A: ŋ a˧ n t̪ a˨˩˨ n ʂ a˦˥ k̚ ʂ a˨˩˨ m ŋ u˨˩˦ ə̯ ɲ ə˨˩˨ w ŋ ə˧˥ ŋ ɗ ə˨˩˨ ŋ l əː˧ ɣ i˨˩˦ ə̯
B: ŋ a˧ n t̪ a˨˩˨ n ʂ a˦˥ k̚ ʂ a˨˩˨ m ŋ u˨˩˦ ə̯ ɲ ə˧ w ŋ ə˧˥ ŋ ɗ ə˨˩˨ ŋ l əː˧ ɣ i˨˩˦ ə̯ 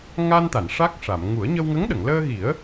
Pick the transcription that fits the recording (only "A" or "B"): B